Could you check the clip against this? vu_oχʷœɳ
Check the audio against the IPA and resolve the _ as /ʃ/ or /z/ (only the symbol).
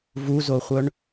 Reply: z